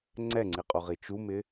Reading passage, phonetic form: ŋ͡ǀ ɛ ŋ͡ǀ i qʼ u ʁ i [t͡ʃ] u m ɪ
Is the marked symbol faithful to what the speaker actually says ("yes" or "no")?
yes